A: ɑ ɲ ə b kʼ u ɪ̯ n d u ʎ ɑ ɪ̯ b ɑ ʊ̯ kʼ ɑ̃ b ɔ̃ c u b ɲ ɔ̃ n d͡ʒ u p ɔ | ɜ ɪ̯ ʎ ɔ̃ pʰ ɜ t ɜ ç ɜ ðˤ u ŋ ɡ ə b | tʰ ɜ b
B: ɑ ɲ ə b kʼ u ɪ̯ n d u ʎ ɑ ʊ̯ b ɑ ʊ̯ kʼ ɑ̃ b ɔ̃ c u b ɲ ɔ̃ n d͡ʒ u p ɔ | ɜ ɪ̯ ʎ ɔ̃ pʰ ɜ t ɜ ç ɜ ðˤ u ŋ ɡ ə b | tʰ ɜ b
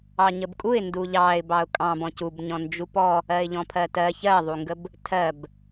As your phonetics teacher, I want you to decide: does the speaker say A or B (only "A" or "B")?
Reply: A